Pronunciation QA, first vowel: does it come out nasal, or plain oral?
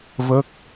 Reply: oral